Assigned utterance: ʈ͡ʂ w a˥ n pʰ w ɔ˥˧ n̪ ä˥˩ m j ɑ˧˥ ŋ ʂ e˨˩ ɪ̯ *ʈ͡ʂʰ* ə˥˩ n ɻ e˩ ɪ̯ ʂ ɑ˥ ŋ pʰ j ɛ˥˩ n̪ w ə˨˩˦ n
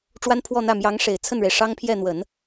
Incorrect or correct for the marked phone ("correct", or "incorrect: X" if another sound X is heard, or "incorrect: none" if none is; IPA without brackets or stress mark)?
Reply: incorrect: t͡sʰ